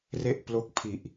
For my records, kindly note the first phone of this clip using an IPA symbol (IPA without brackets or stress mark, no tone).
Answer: r